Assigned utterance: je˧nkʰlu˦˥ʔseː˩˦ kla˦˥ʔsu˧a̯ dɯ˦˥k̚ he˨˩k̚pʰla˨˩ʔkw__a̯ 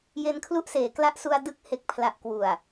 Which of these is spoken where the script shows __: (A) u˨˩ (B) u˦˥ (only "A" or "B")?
A